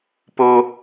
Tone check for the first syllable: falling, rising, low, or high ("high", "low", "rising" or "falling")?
high